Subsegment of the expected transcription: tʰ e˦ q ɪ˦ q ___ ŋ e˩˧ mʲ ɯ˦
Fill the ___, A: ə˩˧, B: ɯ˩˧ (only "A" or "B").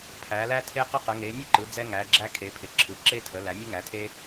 A